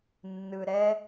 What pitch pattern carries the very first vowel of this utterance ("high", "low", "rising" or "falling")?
low